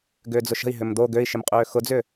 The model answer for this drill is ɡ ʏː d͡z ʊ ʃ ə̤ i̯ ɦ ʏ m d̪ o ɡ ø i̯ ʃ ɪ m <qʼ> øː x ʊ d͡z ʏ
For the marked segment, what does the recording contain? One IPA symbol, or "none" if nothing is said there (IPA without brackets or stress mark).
qʼ